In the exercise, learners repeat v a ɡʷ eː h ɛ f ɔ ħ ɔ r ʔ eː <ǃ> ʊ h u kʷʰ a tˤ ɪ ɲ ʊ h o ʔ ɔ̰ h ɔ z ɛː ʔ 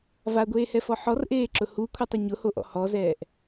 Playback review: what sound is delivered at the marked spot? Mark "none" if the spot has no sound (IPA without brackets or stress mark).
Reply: ǁ